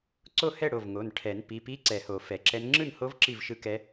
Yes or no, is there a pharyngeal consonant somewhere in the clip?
no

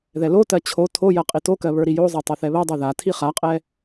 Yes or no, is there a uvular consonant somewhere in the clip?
yes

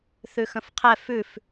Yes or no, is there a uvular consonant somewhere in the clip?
yes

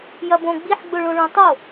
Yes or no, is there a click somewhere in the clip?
no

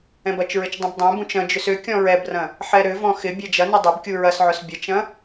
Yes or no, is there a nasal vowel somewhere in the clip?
yes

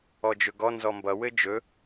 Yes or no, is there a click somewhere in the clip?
no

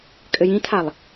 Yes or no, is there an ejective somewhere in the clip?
yes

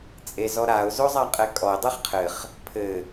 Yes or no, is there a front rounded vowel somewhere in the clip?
no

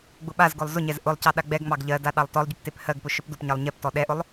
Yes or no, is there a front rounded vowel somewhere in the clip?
yes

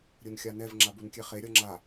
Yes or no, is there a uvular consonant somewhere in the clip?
yes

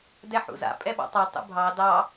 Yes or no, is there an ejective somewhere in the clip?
yes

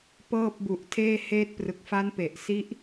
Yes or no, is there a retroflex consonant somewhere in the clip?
no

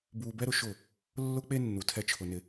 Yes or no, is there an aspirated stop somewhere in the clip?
yes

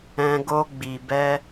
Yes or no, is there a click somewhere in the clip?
no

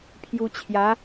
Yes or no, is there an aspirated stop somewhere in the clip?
yes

